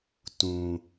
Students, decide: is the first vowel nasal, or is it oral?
nasal